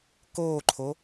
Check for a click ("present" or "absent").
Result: present